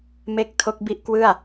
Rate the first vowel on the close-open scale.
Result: mid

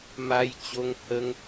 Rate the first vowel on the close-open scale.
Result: open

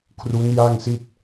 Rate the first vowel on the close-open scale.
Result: close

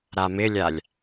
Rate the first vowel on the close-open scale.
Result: open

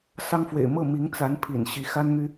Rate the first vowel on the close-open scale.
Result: open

